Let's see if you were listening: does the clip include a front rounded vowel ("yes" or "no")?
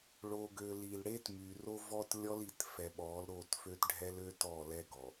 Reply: yes